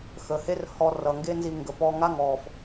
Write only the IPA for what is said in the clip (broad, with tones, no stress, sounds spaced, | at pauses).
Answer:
x əː˩ h e˥ r h ɔ˧ r ʌ˩ ŋ ɡ e˥ n z i˧ ŋ ɡ ə˩ p ɔ˧ ŋ a˥ ŋ ɔː˩ f